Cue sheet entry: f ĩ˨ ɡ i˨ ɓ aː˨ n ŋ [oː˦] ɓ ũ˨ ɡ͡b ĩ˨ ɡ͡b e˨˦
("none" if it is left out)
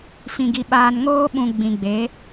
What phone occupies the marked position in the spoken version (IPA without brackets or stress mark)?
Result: oː˦